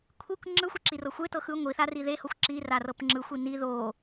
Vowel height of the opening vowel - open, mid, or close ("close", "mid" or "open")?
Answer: close